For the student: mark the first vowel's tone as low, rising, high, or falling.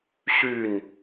falling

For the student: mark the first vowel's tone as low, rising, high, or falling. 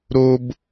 high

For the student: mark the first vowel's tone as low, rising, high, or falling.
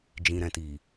low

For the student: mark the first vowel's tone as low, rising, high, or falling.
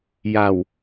low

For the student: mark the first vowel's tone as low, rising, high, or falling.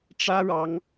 high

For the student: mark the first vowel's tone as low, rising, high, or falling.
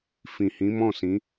low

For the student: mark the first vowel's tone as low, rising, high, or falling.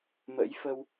rising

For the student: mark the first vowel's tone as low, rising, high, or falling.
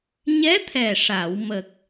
rising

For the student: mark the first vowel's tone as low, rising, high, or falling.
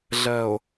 low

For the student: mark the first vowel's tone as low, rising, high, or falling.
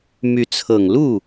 rising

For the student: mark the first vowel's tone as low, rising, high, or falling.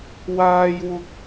high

